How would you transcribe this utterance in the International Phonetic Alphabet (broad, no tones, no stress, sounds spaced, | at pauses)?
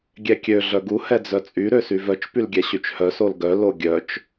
ɡʲ ɛ kʲ ø ɮ œ ɡ u h ɛ d͡z œ t͡sʼ y ɾ ø s y v œ t͡ʃ p y l ɡʲ ɛ ɕ y t͡ʃ h œ s o l ɡ œ l o ɡʲ œ t͡ʃ